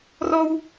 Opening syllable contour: high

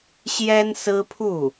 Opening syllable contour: high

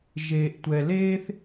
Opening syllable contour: low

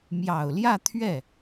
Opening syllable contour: low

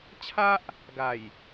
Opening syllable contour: high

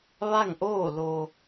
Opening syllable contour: falling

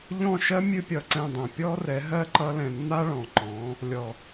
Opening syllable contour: falling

